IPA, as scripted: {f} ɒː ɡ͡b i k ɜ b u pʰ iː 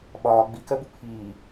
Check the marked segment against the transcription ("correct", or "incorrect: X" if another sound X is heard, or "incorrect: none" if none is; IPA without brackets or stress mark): incorrect: ɓ